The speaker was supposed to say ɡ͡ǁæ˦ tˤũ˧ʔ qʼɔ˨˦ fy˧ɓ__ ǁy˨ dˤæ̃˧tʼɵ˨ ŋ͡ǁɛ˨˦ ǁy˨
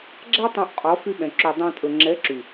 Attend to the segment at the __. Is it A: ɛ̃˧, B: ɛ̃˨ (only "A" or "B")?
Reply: B